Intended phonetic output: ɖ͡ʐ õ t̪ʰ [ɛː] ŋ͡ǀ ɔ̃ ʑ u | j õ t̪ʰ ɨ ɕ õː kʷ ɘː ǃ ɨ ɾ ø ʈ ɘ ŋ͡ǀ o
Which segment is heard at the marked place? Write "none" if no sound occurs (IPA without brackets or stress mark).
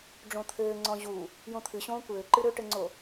ɘː